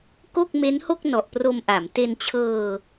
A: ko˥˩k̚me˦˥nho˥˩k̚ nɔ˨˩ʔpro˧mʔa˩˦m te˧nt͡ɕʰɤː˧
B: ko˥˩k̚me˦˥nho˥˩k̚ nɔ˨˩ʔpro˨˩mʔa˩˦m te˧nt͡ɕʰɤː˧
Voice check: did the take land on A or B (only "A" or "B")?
A